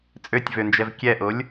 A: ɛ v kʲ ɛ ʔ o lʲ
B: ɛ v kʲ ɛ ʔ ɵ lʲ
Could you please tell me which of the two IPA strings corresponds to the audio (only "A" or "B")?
A